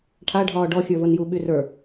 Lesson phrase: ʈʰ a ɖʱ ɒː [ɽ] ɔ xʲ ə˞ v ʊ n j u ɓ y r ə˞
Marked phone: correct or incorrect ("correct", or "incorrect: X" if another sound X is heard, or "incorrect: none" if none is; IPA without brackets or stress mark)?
incorrect: ɖ